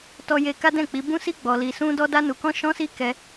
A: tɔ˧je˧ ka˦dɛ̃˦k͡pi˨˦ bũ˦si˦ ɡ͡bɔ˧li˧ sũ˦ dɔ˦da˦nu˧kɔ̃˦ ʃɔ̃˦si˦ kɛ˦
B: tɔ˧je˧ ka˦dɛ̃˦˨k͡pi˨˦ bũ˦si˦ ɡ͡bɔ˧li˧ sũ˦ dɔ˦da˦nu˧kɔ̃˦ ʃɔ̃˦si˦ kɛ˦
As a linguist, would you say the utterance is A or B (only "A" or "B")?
B